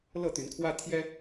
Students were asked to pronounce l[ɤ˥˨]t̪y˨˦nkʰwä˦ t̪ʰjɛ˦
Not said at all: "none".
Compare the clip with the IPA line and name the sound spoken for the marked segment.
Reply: ɤ˥˨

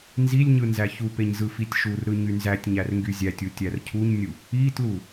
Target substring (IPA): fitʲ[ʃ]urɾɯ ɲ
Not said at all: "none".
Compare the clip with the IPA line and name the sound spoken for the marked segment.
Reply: ʃ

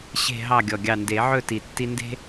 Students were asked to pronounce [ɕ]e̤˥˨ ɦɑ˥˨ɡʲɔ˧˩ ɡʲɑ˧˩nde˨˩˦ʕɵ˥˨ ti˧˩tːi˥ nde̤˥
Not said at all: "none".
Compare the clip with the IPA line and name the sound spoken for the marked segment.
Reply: ɕ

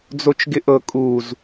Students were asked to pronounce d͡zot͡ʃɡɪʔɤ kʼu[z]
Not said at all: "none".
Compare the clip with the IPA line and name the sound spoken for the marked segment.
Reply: z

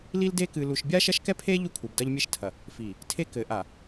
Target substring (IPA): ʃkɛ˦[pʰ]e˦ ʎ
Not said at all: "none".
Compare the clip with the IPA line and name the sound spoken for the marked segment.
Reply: pʰ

